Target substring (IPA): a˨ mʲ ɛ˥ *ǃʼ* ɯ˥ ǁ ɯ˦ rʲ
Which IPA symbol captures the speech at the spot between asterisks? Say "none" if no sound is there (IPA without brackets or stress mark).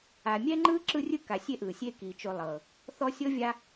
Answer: ŋ͡ǃ